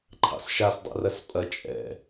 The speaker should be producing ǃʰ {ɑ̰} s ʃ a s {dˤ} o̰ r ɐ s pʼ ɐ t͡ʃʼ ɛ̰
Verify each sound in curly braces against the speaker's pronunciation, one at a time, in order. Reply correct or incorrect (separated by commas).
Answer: correct, correct